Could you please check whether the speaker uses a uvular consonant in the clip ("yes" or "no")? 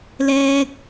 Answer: no